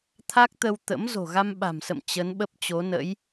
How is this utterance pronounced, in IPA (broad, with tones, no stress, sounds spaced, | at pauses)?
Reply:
t̪ʰ a˦˥ k̚ t̪ ə˧ w t̪ ə̰˧˥ m z o̤˨˩ ɣ a˧ m ɓ a̤˨˩ m s ə̰˧˨ m t͡ɕ ə˨˦ n ɓ ə˦˥ p̚ t͡ɕ o˨˦ n ə̰˧˥ j